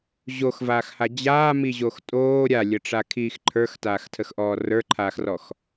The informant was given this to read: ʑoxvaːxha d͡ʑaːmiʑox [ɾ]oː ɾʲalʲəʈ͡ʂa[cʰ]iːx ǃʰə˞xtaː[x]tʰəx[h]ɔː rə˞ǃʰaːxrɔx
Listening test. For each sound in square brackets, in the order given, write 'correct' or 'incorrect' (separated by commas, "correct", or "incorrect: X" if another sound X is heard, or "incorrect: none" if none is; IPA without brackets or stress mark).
incorrect: tʼ, incorrect: kʰ, correct, incorrect: ʔ